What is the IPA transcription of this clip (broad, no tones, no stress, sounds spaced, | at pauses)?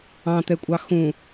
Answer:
ɑ̃ t̪ ɛ kʷʼ ɑ x ũ